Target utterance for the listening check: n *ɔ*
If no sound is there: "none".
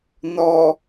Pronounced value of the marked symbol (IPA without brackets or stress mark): ɔ